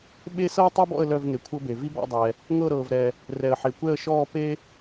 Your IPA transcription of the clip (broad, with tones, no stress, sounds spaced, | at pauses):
ɓ e˥ s ɤ˥ ə̯ tˤ ɤ˥ b ɔ̰˥˧ ə̯ l œ˥˧ v ŋ e˨ kʷʰ ɤ˥ b e˨ v i˥ b ɔ̰˥˧ dˤ ɛ˨ | ŋ ɤ˥˧ ɾ ɤː˨ v ɾ ɛ˨ | r ɛ˨ ə̯ ħ e˨ kʷ ɛ˥˧ ə̯ ʃ ɔː˥˧ p e˥